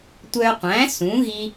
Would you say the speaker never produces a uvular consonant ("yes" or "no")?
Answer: no